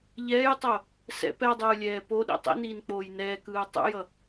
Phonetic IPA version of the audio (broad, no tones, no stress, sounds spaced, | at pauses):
ʎ ɛː j tˤ o | s ɛ̰ p ɛ dˤ ɯː lʲ ɛː p o ɗ ḭ tˤ ḭ n iː n k͡p oː j n ɛː k ɯː tˤ ṵ j ʌ